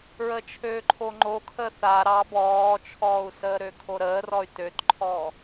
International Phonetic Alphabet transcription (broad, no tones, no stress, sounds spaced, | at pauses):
ɹ ə t͡ʃʰ øː ǃʰ o ŋ͡ǃ o kʰ ə θ a ɾ ɑ b ɔː t͡ʃʰ ɔː u̯ s əː ɾ ø kʰ o ɾ əː r ɔ y̯ t ø t ǃʰ ɔː